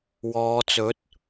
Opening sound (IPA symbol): w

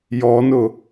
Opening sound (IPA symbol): j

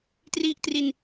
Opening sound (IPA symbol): t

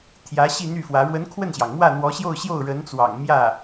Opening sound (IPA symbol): t̪ʰ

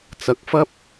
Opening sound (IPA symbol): t͡s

